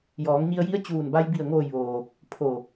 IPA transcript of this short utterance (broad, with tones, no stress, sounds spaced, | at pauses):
j ɔː˩˧ ŋ ɲ i˧ ə̯ j i˧˥ ə̯ t͡ɕ uː˧˩ n b a˧ j b i˧˩ ə̯ ŋ oː˧˩ j ʋ oː˩ | pʰ o˧˩